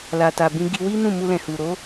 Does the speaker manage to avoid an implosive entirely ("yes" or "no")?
yes